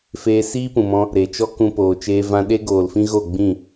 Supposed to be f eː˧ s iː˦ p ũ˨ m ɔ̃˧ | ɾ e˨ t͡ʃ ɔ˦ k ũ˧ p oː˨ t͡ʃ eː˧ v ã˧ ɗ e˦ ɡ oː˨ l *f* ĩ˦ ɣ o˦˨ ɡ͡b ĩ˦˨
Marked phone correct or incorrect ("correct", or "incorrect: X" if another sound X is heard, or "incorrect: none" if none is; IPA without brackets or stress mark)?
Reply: correct